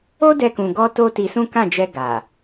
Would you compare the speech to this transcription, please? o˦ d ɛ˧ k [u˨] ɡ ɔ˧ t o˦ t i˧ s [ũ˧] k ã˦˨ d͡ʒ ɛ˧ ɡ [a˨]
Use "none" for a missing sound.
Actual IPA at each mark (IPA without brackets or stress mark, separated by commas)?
ũ˨, ũ˦, a˨